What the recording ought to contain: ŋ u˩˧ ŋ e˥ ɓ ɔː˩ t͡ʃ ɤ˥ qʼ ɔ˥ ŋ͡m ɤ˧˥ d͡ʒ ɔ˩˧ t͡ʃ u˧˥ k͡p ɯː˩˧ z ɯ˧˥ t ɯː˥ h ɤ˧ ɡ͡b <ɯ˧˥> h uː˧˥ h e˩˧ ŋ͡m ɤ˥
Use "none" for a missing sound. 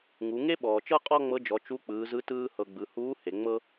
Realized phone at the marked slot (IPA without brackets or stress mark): ɯ˩˧